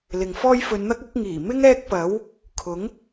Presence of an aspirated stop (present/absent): present